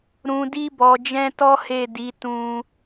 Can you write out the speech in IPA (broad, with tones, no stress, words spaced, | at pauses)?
ɾũ˨di˧bɔ˨d͡ʒɛ̃˧ tɔ˦he˦˨di˨˦ tũ˦